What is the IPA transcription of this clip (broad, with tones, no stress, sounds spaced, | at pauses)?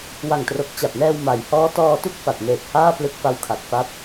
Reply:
w a˨˩ ŋ t r o˨˩ k̚ t͡ɕ a˨˩ p̚ n ɛː˧ w m a˩˦ j h ɔː˦˥ t ɔː˧ t u˥˩ k̚ f a˨˩ t̚ n eː˨˩ k̚ h aː˥˩ p l ɯ˦˥ k̚ f a˧ w kʰ a˨˩ k̚ f a˦˥ p̚